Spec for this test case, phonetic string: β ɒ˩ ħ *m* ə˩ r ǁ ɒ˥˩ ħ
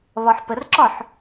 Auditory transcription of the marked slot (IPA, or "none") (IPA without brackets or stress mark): p